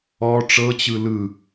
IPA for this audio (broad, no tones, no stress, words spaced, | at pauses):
ɔ ʈ͡ʂɤt͡ɕɯ lɯ